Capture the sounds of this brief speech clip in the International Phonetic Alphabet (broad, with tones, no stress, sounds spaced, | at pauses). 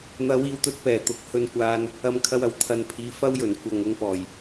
n̪ ɐ˨˧ w iː˨ w t̪ ɵ˧ t̚ p ɛː˨˩ t̪ ʊ˨˥ k̚ h ɵ˧ n kʷ aː˧ n | ɐ˧ m kʰ ɐ˧ w ɐ˨˩ w t̪ʰ ɐ˨ n pʰ iː˨˧ f ɐ˥ w j ɵ˨˩ n kʷ ɐ˨ ŋ ʊ˧ ŋ p ɔː˨˩ j